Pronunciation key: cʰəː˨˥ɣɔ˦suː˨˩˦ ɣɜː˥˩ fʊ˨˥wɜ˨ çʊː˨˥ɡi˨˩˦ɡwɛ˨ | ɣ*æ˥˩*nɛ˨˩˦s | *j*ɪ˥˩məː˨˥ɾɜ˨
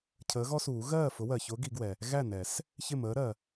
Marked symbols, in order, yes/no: yes, no

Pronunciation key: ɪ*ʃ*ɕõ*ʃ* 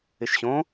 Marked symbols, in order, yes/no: yes, no

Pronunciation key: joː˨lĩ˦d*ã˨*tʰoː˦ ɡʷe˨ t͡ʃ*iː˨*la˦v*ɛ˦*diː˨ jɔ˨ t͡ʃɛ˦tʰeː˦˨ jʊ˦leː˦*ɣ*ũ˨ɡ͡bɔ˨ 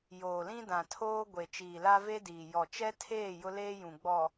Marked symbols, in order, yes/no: yes, yes, no, no

